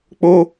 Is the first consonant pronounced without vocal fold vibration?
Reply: yes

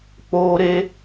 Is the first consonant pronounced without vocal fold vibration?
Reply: yes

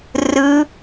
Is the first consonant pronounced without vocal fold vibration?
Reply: no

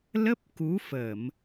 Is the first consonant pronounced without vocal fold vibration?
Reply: no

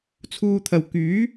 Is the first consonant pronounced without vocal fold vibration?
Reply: yes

